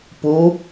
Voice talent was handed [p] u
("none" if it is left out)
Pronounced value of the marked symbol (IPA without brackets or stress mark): p